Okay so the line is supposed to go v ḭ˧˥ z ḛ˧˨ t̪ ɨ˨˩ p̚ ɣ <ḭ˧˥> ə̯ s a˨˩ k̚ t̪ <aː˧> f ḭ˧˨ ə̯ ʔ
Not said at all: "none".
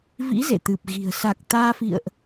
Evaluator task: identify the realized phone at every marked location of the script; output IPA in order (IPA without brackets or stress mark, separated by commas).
i̤˨˩, aː˧